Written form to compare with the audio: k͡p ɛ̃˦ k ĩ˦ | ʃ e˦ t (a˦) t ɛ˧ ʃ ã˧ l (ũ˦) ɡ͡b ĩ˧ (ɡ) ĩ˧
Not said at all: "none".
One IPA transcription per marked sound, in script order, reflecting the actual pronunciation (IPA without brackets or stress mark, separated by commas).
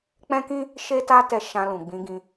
a˦, ũ˨, ɡ